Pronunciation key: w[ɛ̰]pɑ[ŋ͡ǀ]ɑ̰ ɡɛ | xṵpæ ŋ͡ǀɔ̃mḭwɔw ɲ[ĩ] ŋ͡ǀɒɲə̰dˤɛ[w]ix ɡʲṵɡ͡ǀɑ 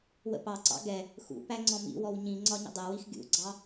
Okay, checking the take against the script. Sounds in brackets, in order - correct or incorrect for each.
incorrect, incorrect, correct, correct

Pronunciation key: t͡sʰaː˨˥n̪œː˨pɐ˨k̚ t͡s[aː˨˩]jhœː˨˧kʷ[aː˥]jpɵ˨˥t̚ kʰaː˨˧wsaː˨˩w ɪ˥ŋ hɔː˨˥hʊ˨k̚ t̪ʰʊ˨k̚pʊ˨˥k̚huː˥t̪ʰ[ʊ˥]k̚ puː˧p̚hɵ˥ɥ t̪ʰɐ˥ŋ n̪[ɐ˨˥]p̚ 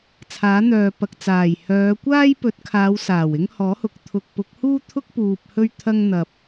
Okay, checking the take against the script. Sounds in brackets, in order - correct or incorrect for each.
correct, correct, correct, incorrect

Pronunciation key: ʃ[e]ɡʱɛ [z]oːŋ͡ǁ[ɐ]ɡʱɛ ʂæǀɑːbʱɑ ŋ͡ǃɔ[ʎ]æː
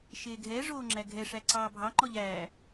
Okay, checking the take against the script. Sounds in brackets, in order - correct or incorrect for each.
incorrect, incorrect, incorrect, correct

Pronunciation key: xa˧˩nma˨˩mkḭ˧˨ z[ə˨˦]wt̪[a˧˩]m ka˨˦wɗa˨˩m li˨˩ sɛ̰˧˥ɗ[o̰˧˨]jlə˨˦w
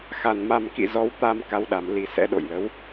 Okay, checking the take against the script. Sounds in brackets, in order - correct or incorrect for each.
incorrect, incorrect, correct

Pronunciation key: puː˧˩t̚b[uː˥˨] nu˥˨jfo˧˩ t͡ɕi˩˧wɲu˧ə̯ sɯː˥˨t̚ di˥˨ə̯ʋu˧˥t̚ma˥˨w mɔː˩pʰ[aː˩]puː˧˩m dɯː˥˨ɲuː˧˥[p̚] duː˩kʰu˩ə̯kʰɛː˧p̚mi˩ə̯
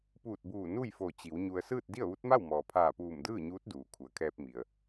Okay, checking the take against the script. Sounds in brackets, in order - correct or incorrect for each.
incorrect, incorrect, incorrect

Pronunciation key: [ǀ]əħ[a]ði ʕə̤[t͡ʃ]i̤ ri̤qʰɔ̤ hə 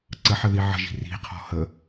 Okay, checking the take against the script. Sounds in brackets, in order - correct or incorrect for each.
correct, incorrect, incorrect

